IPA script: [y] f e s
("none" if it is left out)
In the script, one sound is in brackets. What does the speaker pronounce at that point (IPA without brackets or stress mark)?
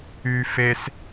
y